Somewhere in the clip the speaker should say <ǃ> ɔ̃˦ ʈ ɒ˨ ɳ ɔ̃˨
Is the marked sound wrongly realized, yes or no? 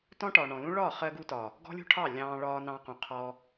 yes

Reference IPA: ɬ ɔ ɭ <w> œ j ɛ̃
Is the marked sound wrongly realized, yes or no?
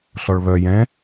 yes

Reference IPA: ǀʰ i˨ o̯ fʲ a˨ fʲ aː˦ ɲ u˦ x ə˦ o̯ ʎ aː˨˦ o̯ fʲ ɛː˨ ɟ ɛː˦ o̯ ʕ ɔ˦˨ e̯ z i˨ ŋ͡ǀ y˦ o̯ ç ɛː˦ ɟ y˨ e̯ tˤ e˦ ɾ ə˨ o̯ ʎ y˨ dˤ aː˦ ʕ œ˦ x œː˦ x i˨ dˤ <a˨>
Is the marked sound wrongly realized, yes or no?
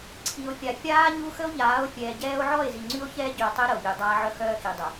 yes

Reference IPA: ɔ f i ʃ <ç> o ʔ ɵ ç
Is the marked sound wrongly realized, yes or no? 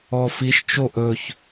yes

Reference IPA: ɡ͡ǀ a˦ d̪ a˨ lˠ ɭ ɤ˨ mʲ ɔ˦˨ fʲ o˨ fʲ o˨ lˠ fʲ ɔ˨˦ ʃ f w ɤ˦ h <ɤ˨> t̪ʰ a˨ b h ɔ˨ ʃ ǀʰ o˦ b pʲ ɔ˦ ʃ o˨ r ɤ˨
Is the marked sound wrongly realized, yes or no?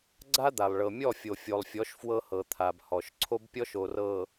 no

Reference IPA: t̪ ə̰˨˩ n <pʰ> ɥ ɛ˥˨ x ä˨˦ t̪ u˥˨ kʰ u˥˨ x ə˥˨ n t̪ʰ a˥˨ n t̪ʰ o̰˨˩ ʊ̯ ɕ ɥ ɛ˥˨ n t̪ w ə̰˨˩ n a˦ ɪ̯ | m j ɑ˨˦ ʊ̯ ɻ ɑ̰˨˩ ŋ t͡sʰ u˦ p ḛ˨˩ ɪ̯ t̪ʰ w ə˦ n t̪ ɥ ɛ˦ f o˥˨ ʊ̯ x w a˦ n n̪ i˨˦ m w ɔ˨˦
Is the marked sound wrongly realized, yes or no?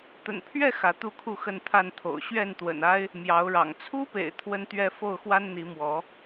no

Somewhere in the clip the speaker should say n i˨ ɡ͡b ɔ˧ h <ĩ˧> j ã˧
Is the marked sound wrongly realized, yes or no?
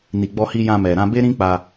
yes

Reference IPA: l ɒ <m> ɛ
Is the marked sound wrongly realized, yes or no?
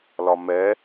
no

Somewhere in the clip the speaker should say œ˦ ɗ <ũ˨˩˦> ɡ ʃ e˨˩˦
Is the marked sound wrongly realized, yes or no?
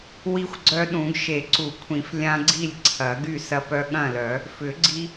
no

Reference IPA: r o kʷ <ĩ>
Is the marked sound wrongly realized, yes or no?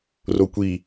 yes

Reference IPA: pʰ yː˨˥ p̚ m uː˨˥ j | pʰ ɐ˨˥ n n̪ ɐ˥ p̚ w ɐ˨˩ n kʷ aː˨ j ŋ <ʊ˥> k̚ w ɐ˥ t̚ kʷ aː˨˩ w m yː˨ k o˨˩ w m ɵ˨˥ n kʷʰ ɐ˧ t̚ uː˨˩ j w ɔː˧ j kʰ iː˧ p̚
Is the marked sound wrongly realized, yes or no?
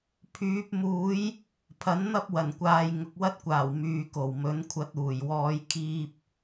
yes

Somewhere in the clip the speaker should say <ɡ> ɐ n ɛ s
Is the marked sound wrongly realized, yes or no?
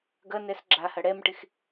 no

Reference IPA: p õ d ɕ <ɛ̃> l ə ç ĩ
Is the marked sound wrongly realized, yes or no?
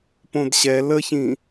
yes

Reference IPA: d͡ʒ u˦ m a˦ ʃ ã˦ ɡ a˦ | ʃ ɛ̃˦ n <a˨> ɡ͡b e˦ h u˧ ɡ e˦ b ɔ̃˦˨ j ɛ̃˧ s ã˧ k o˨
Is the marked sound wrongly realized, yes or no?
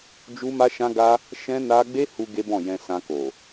yes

